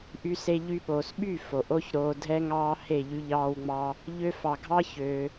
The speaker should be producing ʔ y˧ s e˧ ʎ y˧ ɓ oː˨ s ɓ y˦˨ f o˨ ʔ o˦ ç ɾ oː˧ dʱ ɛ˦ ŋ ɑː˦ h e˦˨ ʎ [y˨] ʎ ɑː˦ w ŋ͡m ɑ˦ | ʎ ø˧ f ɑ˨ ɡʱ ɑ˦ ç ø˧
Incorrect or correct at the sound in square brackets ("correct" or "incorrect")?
incorrect